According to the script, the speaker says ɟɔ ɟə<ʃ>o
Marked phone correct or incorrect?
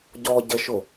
correct